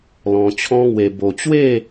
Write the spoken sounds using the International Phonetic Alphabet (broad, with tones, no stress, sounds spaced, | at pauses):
l ɔ̃˧ t͡ɕʰ ɔ̃˦ ŋ w e˧ b o˧ t͡ɕ w e˥˧